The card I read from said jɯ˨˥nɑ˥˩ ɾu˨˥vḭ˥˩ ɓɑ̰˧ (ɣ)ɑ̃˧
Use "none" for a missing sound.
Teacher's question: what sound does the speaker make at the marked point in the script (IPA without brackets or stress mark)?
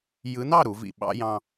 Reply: j